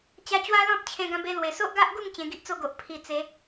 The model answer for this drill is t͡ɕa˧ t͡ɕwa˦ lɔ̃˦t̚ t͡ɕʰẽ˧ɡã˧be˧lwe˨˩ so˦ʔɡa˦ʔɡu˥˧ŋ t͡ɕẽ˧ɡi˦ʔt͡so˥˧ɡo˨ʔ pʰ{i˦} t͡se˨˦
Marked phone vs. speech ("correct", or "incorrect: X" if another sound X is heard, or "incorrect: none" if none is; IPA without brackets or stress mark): incorrect: i˨˩